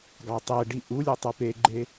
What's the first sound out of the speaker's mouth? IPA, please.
ɡ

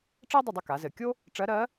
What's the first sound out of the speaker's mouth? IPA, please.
ʈ͡ʂ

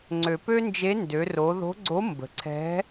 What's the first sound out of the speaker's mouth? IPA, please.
ŋ͡ǀ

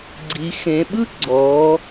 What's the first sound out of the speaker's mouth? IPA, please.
ɡ͡ǀ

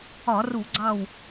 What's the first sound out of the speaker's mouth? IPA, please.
ɒ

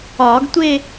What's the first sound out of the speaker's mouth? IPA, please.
ɒː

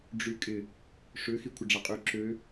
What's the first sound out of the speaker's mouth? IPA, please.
ɖ͡ʐ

